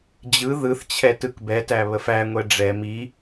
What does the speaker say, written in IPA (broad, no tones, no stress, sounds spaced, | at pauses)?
d͡ʑ ɯ ð ɯ θ t͡ɕʰ ɛ t ɯ k b ɛ t æ β ə f æ ŋʷ ɛ ɖ͡ʐ ɛ m i